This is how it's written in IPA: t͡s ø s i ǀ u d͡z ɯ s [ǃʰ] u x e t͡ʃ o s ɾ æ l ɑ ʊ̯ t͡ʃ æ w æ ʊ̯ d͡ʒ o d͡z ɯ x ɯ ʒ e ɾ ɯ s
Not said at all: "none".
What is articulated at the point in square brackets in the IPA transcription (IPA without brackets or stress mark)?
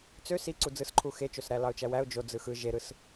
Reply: ǃʰ